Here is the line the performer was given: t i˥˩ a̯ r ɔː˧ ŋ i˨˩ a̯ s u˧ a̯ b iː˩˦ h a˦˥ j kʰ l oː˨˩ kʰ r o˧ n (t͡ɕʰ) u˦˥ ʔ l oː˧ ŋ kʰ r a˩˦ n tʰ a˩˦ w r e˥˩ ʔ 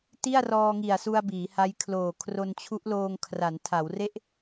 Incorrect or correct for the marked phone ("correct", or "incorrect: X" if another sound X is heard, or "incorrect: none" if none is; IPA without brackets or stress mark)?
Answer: correct